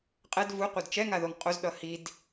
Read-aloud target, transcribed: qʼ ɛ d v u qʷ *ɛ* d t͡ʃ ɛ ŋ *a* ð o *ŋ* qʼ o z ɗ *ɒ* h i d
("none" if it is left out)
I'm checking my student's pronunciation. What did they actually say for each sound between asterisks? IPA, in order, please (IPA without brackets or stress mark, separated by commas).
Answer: ɛ, a, ŋ, ʌ